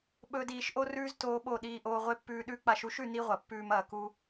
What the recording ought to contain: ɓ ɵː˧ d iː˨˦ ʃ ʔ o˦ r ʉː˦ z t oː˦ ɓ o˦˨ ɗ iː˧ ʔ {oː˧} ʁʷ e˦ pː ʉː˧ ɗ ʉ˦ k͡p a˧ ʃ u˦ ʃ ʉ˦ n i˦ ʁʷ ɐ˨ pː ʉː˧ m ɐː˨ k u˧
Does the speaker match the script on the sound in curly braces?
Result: yes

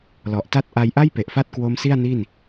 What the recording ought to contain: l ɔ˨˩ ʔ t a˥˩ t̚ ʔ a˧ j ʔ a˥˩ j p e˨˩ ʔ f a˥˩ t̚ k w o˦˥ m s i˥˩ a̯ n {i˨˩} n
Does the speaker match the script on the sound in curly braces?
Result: no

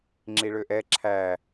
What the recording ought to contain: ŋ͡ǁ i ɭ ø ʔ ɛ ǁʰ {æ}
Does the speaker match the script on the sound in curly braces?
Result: yes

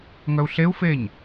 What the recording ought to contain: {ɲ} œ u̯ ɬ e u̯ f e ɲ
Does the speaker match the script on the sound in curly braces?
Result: no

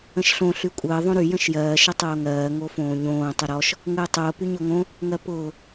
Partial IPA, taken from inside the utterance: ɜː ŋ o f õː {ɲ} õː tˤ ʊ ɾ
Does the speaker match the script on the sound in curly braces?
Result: yes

